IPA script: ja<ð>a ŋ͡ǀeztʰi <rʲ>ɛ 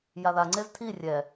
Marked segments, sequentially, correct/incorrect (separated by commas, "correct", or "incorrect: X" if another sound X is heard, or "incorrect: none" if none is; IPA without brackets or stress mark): correct, correct